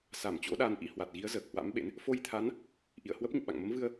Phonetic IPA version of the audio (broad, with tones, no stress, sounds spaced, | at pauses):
s a˧˩ m t͡ɕ o̰˧˥ ɗ a˧ n ʔ ḭ˧˥ h w a˨˩ t̚ ɣ i˨˦ ə̯ z əː˨˩ k̚ h w a̰˧˥ m ɓ ḛ˧˥ n | f o˧ j t̪ʰ a˨˦ n | ʔ ḭ˧˨ ə̯ h w ə˦˥ p̚ ɲ ṵ˧˨ ɓ a̰˧˨ ŋ m ə˨˦ m v ɨ˧ ə̯